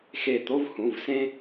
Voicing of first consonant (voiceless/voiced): voiceless